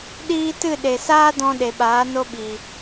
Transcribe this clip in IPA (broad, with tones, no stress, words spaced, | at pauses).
ɗiː˦ tɨ˦˨ɗe˨saː˦dɔ̃˧ ɗe˨ɓaː˨˦ no˦ɓiː˨